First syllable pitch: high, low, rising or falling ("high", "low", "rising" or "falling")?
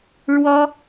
high